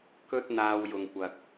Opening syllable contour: high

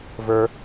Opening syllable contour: low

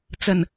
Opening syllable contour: low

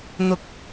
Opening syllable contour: low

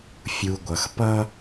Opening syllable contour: low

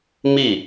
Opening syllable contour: falling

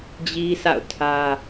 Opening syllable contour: high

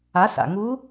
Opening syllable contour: rising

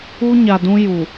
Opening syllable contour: high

